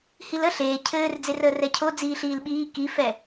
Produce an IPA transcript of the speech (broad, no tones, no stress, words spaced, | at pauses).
hilə ɬeː cʰɘːrd͡zerəːr ɛcʰo d͡ziːɬiːlɓiː kifɛ